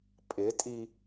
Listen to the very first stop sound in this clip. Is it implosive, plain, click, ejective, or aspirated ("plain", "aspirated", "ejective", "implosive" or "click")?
ejective